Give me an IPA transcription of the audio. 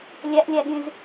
lʲ æ ʔ lʲ æ ɠ ĩ z

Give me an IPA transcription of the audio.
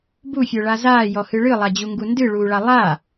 b u fʲ œ ɭ a z aː j ɔ h ɨ ɭ ɨ lˠ a d͡ʑ u ŋ ɡ u n d ɨ ɭ uː ɭ a lˠ a

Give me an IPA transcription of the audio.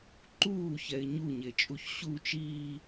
ǃ uː ç ɛ ɪ̯ ɲ u ɲ e t͡ʃʼ u ç ɕ u t͡ʃ iː

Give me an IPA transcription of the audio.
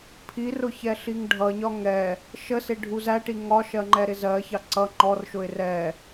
pʰ i r ʊ ç ɛ ɬ i ŋ ɖʱ ʌ ɲ ɒ ŋ ɛ | ʃ ə s ɪ ɖʱ u z æ ʈ i ŋ ɒ ʃ ɜ ŋ͡ǃ ɛ ɾ ɪ z ɜ ç ɑ ǀ ʌ ŋ͡ǃ ɔ r ʃ ʊ ɪ̯ r ɛ

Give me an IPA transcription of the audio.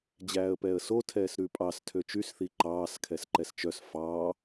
d͡ʑ æː ə̯ p ɛː ə̯ s o tʰ ɛː s ɾ ʉ pʼ ɑ s tʰ ø t͡ʃ y s θ i ǃ ɑː s kʰ ɛ s ǃ ɛ s t͡ʃ œ s f ɑː

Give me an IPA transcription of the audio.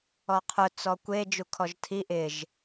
ɔ qʰ ʊ t͡s ɔ kʷ e d͡ʒ u kʰ ɔ ʒ tʰ i ʔ ɪ ʒ

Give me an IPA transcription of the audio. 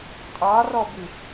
tʼ ɑ r ɔ b ɨ

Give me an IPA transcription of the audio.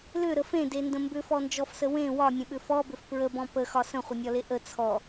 l ʏ ɾ ə f ẽ d e n d ə̃ m b ʏ f ɔ n d͡ʒ ɔ f s ə w ẽ w ɒ nʲ ə̃ ɓ ʏ f ɔ b ʏ f p ɹ ə b ɔ̃ p ə x ɒ s ə̃ χʷ ə nʲ ɒ l e ʔ ə t͡sʰ ɔ

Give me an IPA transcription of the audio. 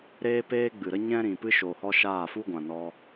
ɾ eː˧ p eː˧ ɡ͡b ɨ˨ ɾ ə˦ ɲ ɛ̃˦ ɾ ĩ˨ p ɨ˦ ʃ oː˨ h ɔ˧ ʃ aː˦˨ f u˦ ɡʷ ã˨ n ɔ˧

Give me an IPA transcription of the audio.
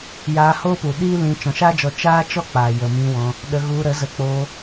j aː˧ h oː˦ p u˨ ɗ iː˦ l ĩ˧ t͡ʃ ɔ̃˨ ʃ aː˦ d͡ʒ ɔ˧ t͡ʃ aː˦ t͡ʃ ɔ˦ k͡p a˨ j ə˨ m ĩ˧ w ɔ̃˧ | ɗ ə˧ ɣ u˧ ɾ ə˨˦ z ə˧ k͡p oː˧

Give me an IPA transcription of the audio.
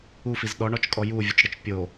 u f i z ɗ ɔ ɳ ɔ t͡ʃ kʼ ɔ j u vʲ u t͡ʃ ɽ ə t͡ʃ pʲ o

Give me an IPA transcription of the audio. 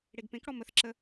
ɽ e ɡ p ẽ k ɽ ɔ m ə θ ǁ ə

